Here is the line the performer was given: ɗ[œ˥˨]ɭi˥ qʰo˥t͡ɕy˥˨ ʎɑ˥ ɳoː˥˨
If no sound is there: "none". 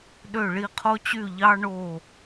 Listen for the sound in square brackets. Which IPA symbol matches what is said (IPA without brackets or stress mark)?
ø˥˨